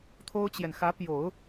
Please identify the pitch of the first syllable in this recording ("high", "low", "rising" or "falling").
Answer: high